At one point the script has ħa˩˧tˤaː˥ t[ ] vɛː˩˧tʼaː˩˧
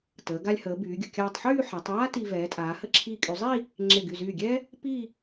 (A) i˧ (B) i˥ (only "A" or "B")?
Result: A